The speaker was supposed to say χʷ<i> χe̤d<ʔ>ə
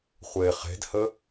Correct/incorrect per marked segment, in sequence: incorrect: e, incorrect: h

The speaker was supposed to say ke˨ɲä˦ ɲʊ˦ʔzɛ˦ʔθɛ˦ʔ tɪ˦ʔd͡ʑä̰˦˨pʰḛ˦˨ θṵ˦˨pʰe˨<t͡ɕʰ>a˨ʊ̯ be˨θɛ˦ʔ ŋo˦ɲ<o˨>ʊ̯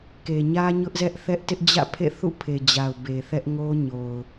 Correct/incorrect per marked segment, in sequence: incorrect: d͡ʑ, correct

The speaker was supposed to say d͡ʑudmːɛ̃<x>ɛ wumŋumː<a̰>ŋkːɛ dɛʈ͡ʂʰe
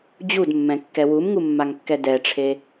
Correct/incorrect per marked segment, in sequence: incorrect: kː, incorrect: a

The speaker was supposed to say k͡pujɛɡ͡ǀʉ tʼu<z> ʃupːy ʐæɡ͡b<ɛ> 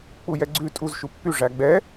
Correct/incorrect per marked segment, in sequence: correct, correct

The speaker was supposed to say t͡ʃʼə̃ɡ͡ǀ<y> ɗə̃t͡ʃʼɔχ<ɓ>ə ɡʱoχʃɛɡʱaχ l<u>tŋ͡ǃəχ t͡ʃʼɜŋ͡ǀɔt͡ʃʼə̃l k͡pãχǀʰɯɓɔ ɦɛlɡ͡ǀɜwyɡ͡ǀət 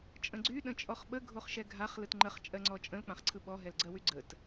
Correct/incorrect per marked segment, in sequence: correct, correct, incorrect: ɯ

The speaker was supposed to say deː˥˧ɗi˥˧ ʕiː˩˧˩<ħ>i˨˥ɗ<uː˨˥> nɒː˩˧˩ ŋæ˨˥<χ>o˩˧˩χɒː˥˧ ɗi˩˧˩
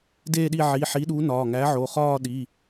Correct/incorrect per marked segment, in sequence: correct, correct, incorrect: ʕ

